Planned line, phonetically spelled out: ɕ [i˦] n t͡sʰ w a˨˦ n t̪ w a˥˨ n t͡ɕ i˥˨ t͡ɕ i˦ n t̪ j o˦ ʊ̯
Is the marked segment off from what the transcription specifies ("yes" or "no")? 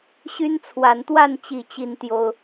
yes